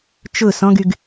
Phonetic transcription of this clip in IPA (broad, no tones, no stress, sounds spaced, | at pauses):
t͡ʃ ʊ s ɔ̃ ɡ y ɡ